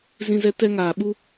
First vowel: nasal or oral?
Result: nasal